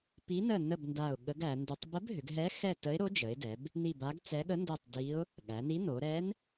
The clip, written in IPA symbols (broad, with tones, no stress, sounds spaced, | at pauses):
p i˧˥ n ə˦˨ n ə˦˨ b n d a˦˨ ʊ̯ ɠ ə˧˥ ɡ æ˩˧ n d ʏ˧˥ tˤ b ə˧˥ b ɦ ʏ˩˧ ɡ ɦ ɛ˧˥ x ɛ˦˨ t ə˧˥ ɪ̯ ɾ o˧˥ d͡ʒ ə˩˧ ɪ̯ d ɛ˩˧ b | n i˦˨ b a˧˥ ɡ t͡s ɛ˧˥ ɠ ə˧˥ n d ɛ˦˨ tˤ d i˧˥ ʊ̯ | ɠ æ˩˧ n i˧˥ n o˩˧ ɾ ɛ˧˥ n